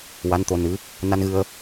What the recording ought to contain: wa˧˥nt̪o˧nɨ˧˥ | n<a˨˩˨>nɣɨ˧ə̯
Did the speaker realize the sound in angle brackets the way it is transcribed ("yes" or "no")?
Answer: no